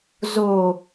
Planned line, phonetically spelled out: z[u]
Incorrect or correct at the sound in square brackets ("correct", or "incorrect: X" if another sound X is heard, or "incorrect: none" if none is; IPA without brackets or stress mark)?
incorrect: o